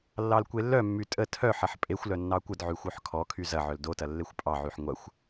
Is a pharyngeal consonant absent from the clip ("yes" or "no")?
no